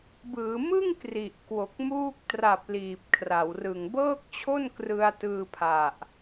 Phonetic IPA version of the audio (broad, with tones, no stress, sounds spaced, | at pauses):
b ɯː˩˦ m ɯ˥˩ ŋ k r i˨˩ ʔ k w o˨˩ k̚ m uː˦˥ k̚ t r a˨˩ p̚ l iː˨˩ p̚ kʰ r a˩˦ w r ɯ˨˩ ŋ b ɤː˥˩ k̚ t͡ɕʰ o˥˩ n k r ɯ˧ a̯ t ɯː˧ pʰ a˨˩ ʔ